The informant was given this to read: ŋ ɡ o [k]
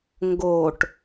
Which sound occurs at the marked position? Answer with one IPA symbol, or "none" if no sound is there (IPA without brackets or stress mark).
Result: ʈ